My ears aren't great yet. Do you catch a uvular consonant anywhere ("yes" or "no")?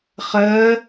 yes